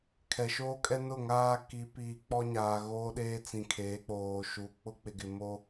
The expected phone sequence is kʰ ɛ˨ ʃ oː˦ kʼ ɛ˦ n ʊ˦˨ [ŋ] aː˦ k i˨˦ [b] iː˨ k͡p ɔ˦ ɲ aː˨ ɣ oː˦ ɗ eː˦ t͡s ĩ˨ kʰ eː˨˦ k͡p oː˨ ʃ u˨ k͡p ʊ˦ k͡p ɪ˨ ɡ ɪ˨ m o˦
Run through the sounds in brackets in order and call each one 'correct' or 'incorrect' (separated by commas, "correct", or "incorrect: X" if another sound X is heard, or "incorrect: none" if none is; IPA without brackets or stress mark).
correct, incorrect: p